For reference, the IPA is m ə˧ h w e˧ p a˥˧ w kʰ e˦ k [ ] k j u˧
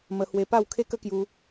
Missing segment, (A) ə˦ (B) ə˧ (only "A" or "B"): A